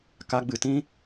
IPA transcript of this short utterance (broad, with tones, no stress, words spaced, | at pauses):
ka˧ɡ͡bɨ˨tĩ˦